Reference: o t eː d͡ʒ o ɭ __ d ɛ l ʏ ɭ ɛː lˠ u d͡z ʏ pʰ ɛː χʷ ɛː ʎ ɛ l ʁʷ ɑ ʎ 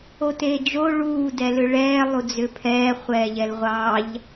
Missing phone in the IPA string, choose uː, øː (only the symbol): uː